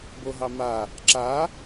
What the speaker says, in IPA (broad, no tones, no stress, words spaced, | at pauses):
boɦɑma | ǁa